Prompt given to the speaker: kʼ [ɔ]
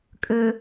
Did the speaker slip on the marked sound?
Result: yes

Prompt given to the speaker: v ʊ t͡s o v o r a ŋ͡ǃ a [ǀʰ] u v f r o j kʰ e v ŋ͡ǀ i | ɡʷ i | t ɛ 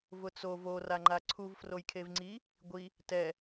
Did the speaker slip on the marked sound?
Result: no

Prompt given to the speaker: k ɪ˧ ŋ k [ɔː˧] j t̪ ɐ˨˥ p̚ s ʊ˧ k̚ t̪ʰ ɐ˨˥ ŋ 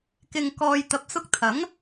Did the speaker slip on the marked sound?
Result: no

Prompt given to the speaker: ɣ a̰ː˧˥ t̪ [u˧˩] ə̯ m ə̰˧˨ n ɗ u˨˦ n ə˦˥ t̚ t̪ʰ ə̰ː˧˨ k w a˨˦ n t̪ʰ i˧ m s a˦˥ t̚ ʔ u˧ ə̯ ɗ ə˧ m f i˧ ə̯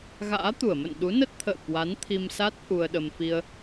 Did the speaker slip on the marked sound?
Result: no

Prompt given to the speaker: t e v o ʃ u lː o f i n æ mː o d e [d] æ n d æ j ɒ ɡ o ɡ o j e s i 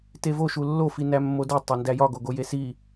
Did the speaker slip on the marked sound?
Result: yes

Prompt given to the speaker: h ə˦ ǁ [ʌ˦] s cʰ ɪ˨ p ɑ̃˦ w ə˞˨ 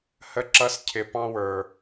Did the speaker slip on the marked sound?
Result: no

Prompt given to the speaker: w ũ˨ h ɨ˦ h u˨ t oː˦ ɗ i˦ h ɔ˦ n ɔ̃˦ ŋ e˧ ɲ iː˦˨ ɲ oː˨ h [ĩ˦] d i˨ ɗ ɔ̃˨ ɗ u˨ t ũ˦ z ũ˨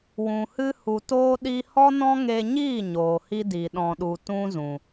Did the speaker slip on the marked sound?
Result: yes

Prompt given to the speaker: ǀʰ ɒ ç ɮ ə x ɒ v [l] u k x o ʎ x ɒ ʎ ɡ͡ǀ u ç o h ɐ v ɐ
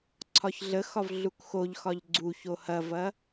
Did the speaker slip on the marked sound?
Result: yes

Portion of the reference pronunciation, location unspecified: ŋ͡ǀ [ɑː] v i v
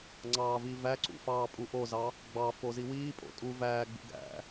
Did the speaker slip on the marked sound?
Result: no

